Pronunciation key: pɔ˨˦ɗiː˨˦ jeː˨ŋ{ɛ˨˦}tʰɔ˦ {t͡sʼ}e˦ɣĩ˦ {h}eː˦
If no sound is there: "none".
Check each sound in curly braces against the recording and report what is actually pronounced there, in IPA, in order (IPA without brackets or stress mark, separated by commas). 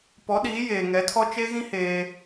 ɛ˨˦, t͡ʃ, h